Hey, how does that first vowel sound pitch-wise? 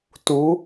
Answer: rising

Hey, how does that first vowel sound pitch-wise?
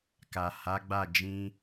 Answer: low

